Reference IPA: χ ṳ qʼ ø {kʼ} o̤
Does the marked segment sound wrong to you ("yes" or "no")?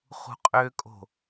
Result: no